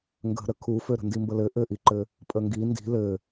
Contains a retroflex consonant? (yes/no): no